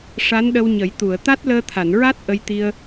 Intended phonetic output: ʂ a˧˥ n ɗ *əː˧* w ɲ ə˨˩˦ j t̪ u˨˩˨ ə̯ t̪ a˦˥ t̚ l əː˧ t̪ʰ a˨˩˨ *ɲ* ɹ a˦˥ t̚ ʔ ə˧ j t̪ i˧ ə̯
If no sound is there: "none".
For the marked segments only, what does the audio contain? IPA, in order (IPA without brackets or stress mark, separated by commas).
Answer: ə˧, n